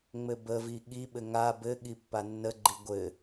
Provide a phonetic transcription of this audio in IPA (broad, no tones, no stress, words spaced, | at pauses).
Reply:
ŋ͡mɘbəvi ɠiɓɘ ŋa bɘ ɠipːanːəɡ͡ǃi ɡʷɘ